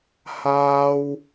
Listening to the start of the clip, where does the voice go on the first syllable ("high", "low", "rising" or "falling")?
high